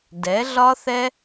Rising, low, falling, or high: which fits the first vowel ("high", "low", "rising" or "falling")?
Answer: rising